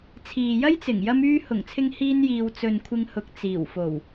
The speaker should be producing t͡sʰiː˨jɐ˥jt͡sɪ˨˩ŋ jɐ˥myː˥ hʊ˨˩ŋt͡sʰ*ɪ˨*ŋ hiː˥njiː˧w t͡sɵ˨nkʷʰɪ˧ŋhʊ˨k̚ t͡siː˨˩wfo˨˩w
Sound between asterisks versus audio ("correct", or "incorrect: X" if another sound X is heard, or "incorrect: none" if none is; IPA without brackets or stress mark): incorrect: ɪ˧